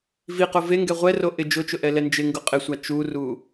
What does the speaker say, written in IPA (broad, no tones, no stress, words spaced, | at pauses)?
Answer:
viqo veŋɡɛ ʁʷɛro ʔɪ d͡ʒʊt͡ʃʊ ʔɛlɛnd͡ʒɪŋɡʊ qʼɪsʷa t͡ʃuru